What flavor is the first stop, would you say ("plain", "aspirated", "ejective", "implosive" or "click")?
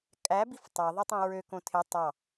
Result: ejective